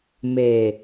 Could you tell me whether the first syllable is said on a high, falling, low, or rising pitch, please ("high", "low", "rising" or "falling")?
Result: low